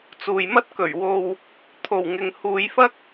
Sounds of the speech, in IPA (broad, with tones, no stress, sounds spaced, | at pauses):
t͡s uː˨ j m ɐ˥ t̚ k ɵ˨˩ ɥ w o˨ w | t̪ʰ o˨˩ w ŋ ɪ˨ ŋ h uː˨˧ j f ɐ˥ k̚